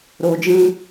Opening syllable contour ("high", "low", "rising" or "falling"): low